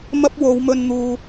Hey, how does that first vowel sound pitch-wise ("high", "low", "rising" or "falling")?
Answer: high